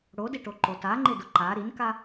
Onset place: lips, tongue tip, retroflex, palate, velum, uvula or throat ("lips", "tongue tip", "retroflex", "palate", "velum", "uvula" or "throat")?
retroflex